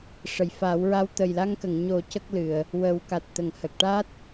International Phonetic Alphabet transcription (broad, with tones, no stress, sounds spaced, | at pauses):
ʂ ə˨˩˨ j f a˨˩˦ w ɹ a˧ w t̪ ə˨˩ j l a˧ ŋ k ə˨˩˨ ŋ ɲ o˨˩˦ c ə˦˥ k̚ l ɨ˨˩˨ ə̯ | w ə˨˩˦ w k a˨˩ t̚ t̪ ə˨˩˨ ŋ h ə˨˩ k̚ ʈ a˦˥ t̚